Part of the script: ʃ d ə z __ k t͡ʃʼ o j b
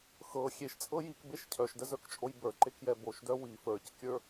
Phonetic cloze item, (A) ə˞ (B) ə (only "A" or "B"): A